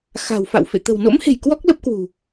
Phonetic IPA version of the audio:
x a̤˨˩ w f a̰˧˨ w f ḛ˧˨ t̪ ə̤˨˩ w n o̰˧˥ m h e̤˨˩ j k w ɔ˦˥ k̚ l ə˦˥ p̚ k w ṳ˨˩

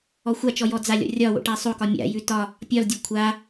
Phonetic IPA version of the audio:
ɔ xʷ a t͡ʃ ɔ j ɔ d͡z a lʲ ɔ̰ rʲ ɒ w o̰ ʈ a sˤ o k ɒ mʲ a̰ j ʉ t ɒ | pʲ ɒ l dʲ ɤ kʷʰ a

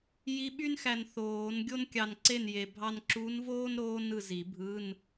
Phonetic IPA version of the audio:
j i˧˥ ɓ y˥ n x æ˧ n θ oː˨˩˦ n ɡʲ o˥ n kʲ ɑ˧ n ǀ e˥˨ n j e˧ bʱ ɑ˥ n ǁ u˧˥ n v oː˥ n ɾ oː˥ n ɯ˧ z i˨˩˦ bʱ ɯ˧˥˧ n

